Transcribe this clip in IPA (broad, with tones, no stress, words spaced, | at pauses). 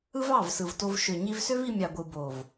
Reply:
ɯ˦vɑ˦˨vsɯ˨vto˧v ʃø˨ɲi˧vsø˦v i˧mʲɑ˨ɡʷɯ˨ bo˨v